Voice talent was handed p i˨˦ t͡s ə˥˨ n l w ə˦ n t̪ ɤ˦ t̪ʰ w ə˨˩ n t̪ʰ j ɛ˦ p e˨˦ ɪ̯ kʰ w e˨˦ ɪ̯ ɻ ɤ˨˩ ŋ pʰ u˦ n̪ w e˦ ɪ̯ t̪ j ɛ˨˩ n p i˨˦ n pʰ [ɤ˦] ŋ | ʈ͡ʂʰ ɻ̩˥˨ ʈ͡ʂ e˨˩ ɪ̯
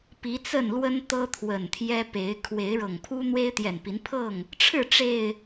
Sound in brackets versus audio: incorrect: ɤ˥˨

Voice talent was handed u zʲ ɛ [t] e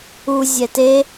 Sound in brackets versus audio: correct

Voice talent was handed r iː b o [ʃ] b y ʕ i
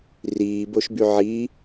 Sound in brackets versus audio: correct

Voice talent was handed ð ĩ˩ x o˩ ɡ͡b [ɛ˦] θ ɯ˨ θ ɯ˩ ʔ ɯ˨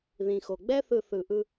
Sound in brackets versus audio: correct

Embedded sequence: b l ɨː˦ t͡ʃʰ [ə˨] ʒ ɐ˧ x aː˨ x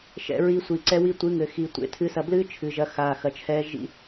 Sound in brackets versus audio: incorrect: ɨ˨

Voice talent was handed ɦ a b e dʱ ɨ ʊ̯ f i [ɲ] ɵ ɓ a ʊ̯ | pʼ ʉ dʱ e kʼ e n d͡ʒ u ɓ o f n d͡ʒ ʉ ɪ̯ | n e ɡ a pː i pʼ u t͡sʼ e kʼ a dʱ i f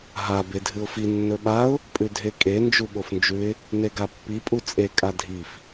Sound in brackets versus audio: incorrect: nː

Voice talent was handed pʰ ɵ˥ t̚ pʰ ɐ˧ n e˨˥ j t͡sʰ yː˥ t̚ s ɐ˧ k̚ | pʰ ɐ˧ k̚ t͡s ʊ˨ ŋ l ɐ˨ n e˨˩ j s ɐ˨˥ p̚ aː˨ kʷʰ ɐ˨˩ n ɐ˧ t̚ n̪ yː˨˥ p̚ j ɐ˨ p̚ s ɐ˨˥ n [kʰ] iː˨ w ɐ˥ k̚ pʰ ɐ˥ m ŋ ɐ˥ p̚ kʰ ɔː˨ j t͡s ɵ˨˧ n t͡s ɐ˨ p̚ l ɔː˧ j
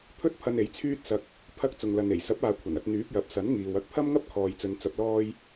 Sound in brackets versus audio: incorrect: ŋ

